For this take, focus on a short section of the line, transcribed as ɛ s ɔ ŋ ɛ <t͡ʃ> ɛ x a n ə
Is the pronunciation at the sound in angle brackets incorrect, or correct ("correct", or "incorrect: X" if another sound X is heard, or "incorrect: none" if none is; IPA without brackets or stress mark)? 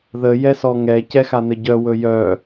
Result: incorrect: c